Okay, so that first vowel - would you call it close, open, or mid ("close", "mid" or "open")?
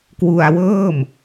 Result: close